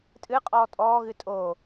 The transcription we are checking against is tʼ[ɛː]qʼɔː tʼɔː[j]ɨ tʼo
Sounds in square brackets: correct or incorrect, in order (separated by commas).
incorrect, incorrect